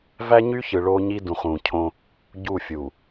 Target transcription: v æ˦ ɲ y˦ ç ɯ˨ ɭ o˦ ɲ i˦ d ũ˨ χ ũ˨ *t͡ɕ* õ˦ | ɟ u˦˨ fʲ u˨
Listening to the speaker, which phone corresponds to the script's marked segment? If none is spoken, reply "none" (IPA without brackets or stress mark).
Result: cʰ